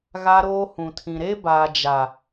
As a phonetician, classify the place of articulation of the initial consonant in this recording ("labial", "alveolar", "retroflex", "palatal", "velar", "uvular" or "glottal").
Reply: velar